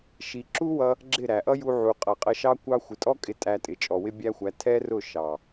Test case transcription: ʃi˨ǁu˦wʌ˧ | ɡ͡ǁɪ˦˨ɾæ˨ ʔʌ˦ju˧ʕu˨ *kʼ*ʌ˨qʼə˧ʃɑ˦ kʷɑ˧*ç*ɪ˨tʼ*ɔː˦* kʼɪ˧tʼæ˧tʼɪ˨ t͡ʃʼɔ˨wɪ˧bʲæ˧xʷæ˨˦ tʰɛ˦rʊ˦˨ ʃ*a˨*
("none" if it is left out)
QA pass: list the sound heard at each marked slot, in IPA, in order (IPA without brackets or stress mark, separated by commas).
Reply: qʼ, xʷ, ɔ˦, ɑ˨